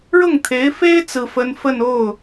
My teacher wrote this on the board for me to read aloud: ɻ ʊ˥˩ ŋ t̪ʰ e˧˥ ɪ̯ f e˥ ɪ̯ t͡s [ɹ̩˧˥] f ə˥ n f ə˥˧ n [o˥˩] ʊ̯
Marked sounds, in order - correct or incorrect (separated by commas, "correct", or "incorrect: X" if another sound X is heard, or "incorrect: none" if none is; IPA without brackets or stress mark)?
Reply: incorrect: ɹ̩˥, correct